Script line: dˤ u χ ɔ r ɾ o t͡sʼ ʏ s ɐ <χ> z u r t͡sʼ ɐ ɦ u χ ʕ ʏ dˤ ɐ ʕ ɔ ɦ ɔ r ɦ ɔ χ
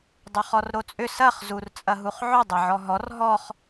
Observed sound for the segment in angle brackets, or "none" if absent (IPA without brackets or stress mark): χ